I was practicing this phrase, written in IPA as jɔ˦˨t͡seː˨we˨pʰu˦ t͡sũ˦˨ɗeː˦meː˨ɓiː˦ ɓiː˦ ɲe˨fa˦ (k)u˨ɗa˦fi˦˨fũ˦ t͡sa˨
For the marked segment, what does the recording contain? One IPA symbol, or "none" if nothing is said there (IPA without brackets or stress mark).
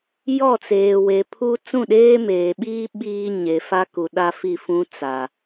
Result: k